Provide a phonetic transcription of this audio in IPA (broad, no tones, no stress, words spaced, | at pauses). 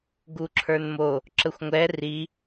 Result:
ɡuǁʰə˞nmo | ǁəxʷŋʷɛ ri